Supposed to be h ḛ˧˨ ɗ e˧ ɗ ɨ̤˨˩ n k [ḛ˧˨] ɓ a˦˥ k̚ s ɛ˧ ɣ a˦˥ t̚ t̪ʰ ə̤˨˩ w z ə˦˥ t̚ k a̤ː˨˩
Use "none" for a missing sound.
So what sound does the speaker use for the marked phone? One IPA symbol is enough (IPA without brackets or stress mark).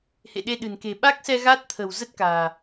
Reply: e̤˨˩